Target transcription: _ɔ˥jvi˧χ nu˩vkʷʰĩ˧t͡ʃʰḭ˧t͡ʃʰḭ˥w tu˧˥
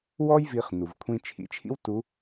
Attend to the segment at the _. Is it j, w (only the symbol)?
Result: w